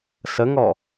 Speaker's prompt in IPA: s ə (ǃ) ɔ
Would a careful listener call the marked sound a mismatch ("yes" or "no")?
yes